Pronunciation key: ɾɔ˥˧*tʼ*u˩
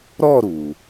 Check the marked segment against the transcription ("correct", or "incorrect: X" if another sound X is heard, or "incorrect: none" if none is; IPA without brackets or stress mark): incorrect: ɾ